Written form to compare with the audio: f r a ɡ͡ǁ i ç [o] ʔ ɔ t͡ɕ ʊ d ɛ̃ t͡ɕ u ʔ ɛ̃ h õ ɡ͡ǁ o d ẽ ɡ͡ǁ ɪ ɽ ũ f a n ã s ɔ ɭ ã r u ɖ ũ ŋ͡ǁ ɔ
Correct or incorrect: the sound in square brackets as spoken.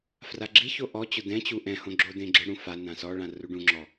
correct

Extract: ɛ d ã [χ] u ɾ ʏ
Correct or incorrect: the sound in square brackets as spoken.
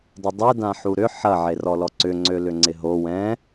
incorrect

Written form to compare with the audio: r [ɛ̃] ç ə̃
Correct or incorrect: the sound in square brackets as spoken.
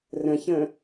incorrect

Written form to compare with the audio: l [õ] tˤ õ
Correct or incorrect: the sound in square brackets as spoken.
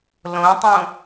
correct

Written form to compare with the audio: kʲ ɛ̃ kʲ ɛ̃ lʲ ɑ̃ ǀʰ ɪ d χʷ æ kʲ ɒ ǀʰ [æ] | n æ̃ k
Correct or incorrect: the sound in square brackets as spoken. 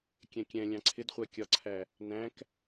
correct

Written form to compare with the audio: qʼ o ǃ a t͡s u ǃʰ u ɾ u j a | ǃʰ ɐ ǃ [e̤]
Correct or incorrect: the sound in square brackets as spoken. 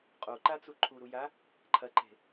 correct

